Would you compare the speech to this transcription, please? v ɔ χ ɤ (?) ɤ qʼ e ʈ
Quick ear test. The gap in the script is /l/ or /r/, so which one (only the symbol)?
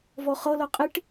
l